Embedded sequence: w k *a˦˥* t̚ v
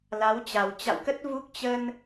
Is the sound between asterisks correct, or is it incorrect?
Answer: incorrect